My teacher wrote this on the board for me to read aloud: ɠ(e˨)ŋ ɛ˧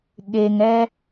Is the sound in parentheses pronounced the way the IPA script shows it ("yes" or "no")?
yes